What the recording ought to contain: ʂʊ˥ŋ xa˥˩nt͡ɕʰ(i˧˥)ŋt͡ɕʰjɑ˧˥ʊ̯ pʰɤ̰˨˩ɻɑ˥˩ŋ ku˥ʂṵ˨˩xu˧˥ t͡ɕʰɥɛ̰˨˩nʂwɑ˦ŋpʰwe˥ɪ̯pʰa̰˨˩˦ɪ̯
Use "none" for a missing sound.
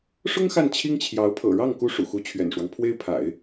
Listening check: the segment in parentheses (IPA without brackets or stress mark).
i˥